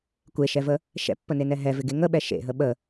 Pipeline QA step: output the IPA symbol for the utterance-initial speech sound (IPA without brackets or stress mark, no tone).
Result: kʷ